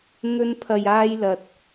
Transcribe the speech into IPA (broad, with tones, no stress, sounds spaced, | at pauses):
n̪ ɵ˥ n pʰ ɐ˧ j aː˥ j l ɐ˨ t̚